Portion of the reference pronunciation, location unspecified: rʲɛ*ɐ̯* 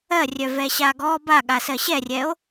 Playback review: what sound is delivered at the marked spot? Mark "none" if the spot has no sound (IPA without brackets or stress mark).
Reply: o̯